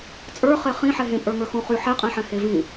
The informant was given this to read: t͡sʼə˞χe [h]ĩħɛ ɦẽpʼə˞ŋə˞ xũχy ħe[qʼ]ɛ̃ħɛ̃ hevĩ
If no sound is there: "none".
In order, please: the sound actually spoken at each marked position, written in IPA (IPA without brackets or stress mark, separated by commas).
χ, qʼ